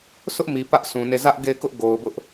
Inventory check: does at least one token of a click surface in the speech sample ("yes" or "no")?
no